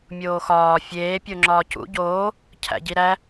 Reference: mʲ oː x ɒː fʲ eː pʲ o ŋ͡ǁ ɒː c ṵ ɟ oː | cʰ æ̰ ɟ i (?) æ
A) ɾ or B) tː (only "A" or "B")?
A